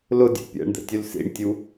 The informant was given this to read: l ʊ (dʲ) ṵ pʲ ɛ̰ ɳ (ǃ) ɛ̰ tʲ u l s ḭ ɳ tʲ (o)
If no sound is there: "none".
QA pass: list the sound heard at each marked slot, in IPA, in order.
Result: dʲ, d̪, u

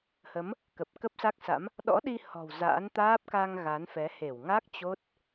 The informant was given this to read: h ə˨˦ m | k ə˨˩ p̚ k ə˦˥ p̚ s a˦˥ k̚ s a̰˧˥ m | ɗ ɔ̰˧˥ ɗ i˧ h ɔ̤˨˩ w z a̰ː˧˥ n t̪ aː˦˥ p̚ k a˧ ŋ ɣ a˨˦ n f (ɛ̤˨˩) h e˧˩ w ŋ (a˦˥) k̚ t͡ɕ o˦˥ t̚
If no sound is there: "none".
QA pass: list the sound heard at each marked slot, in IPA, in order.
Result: ɛ˨˦, a˦˥

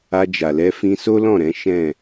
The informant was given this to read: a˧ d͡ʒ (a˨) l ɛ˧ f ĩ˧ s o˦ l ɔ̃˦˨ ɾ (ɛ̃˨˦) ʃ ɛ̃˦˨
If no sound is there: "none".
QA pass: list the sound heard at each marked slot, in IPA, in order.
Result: a˨, ɛ̃˨˦

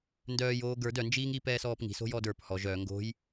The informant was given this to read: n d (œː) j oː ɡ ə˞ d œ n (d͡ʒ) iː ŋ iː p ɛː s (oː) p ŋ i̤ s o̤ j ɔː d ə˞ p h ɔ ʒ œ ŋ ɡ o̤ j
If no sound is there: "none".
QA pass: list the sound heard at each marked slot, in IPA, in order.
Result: œː, d͡ʒ, ɔː

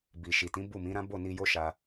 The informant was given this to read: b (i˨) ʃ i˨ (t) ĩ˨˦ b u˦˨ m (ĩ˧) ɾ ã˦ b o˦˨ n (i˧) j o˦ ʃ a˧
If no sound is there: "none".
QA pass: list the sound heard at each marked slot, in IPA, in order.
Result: i˨, t, ĩ˨˦, i˧

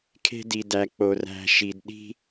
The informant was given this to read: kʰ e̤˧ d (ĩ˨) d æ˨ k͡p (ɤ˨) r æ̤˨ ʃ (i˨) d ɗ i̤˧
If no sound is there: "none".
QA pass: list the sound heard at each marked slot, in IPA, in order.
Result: i˨, o˨, i˨

